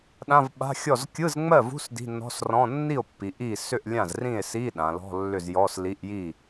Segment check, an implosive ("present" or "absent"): present